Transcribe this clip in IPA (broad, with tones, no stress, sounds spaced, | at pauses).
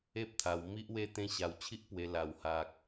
e˦ p̚ t̪ʰ a˧ w m i˦ ʔ w e˦ t̪ ẽ˦ ɕ a˧ w t͡ɕʰ i˦ ʔ p w e˧ l a˨˩ w h a˨ k̚